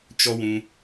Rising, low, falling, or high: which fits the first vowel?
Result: high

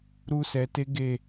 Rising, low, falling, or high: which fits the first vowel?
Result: high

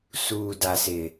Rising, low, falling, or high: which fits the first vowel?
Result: low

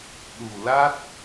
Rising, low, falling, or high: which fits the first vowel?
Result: low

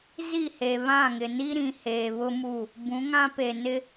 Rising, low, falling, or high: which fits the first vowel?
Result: falling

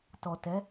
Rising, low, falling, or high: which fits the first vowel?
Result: low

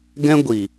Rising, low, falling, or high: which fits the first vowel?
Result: high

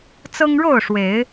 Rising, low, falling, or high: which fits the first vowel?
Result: high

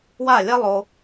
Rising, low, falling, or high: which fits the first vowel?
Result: falling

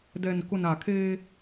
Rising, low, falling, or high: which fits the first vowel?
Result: low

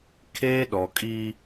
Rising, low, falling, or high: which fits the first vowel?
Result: high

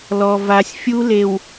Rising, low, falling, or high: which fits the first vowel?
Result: low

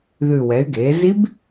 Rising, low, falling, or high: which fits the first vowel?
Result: low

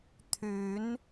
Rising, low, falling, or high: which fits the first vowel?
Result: rising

